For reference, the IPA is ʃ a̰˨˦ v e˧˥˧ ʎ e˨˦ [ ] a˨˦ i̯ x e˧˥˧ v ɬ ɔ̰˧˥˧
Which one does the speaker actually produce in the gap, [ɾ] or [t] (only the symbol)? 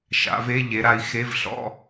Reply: ɾ